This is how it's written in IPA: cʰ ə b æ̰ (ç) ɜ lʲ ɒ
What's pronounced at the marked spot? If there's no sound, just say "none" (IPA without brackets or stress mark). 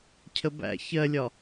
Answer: ç